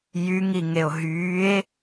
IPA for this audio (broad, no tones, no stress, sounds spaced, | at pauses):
j y ŋ i ŋ e o̯ ɦ yː e̯